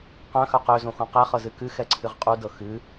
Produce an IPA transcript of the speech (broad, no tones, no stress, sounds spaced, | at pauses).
q œ̃ x œ q ø z õ x õ q ɛ χ ɤ z ɨ k ɨ x ɛ ǀʰ ɨ ʁ qʼ u d ɤ x ɨ